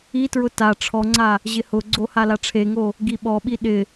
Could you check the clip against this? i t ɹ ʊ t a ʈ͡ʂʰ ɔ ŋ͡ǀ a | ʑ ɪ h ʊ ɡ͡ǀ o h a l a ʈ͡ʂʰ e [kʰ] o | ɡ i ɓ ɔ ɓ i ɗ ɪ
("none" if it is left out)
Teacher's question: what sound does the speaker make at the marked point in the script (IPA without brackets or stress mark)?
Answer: ŋ